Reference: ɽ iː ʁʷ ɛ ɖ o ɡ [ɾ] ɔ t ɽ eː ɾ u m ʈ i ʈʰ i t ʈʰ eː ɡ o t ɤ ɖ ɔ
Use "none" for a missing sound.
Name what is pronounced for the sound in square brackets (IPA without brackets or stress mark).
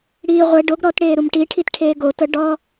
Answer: ɾ